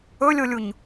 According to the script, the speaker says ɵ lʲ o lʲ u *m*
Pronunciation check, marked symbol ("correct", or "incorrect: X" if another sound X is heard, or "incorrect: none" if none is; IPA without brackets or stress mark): incorrect: ɲ